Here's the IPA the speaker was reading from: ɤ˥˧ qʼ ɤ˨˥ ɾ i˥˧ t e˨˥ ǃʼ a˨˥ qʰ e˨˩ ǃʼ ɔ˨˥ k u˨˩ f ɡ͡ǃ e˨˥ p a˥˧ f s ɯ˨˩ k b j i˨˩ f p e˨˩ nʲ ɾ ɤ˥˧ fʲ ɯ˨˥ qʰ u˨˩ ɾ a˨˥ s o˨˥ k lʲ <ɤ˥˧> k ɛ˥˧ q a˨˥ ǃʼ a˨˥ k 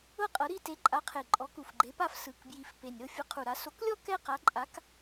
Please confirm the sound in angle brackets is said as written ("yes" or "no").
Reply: no